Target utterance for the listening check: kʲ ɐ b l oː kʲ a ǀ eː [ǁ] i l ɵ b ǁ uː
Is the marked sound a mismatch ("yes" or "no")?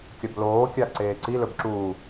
yes